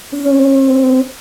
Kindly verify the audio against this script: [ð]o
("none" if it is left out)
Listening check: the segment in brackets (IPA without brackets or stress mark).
ð